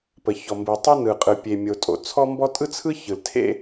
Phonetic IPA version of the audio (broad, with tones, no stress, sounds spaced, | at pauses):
p ə˩ ç ɔ˩ m b ɯ˩ tˤ ɯ˥ n ɯ˩ qʼ ɯ˩ pʲ e˩ mʲ o˩ tʼ o̰˩ t͡sʰ ɔ˥ m b ɔ˥ tʼ ɯ˥ t͡sʰ ɯ˥ ç ɯ˩ l tʰ ḛ˥